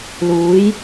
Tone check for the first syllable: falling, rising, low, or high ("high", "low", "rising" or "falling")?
rising